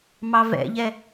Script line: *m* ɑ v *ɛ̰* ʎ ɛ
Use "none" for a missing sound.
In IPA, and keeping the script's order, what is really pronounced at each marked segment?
m, ɛ̰

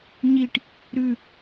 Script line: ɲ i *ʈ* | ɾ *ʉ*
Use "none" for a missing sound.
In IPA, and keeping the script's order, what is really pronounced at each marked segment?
ʈ, ʉ

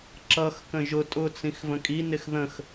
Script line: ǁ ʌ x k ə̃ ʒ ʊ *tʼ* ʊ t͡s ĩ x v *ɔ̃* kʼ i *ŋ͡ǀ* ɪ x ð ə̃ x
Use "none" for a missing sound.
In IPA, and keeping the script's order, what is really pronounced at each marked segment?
tʼ, ə̃, n

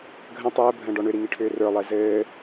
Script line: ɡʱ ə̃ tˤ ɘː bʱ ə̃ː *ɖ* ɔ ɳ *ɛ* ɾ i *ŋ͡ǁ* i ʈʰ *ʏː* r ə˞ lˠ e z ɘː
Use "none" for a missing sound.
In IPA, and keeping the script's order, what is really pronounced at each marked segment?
ɖ, ʏ, ŋ, ʏː

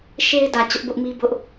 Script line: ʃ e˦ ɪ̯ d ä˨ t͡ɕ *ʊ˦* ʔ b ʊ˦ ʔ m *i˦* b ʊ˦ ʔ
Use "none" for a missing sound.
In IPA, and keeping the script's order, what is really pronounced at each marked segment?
ʊ˦, i˦

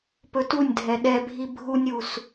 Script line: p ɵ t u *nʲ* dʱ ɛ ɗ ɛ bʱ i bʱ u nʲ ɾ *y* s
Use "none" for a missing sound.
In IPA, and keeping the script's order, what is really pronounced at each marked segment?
nʲ, u

